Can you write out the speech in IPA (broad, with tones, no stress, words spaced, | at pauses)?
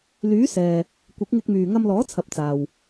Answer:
lyː˨˥sɛː˨ | kʷɪ˨˥k̚ŋɪ˧k̚myː˨ ŋɐ˧mlɔː˨˥t͡sʰɐ˨p̚ t͡saː˨w